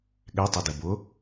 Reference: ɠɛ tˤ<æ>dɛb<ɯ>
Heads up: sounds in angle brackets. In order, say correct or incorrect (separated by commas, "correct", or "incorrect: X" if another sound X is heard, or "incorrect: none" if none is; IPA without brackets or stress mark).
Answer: correct, incorrect: ʊ